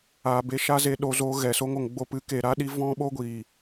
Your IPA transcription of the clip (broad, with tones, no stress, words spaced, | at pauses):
aː˨be˧ ʃa˦ze˧ɗo˧ zoː˦ ɣɛ˨so˦ŋ o˨ŋɡ͡bo˧pɨ˨˦ ke˨ɾa˦ɗi˧ vɔ̃˦ɓo˦ɡʷiː˨